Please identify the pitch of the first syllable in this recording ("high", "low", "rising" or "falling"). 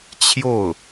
falling